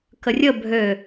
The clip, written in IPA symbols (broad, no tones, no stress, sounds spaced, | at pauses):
k ə rʲ ə bʱ ø